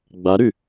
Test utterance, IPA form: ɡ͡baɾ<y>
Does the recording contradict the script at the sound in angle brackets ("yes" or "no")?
no